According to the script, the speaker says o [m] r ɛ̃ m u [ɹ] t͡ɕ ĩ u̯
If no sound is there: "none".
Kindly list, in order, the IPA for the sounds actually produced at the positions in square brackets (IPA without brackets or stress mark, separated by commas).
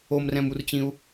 m, r